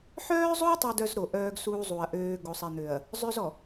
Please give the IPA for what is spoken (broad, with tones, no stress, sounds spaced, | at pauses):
ħ œː˦ zˤ o˦ tˤ ɛ˦ d œ˦ z ɾ o˨ ʔ œː˦ ɡ s uː˦ zˤ u˨ ɐ̯ ʔ øː˦ ɡ o˨ sˤ ɛ˨ n̪ ø˨ ɐ̯ | zˤ ø˦ z ɔ˨